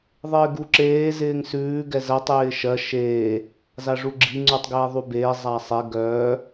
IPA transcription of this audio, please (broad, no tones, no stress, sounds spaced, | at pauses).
ðˤ ɪː ɡ u ǁ eː z ɪː ŋ s ʉː ɡ ɛ z ɜ tˤ j ɪː ʃ ɜ ʃ eː | z a ʐ u ɡ͡ǁ i ŋ͡ǀ u tˤ ɡ eː ðˤ u b eː zˤ a sˤ e ɡ œː